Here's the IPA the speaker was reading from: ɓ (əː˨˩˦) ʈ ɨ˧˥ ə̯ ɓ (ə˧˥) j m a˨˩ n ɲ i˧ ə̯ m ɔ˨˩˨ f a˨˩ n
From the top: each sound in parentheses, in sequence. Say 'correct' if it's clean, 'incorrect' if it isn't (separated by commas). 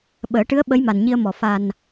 correct, correct